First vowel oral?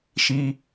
yes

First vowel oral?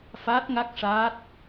yes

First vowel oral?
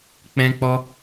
no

